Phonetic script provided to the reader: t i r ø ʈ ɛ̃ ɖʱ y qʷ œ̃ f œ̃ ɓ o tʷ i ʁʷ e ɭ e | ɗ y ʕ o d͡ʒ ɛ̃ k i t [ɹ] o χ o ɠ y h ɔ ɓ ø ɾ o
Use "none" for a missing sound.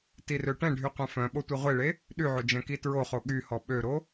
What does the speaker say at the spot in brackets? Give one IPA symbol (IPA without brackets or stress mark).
ɹ